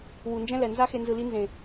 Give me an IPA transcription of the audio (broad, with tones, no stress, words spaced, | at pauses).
wu˨nd͡ʒɛ̃˦lɛ˨ nza˦xe˧ nzɯ˧li˦ nzẽ˨